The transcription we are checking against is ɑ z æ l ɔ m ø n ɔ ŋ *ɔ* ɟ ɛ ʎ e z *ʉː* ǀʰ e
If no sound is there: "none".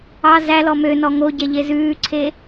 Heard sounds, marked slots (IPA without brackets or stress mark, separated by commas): o, ʉː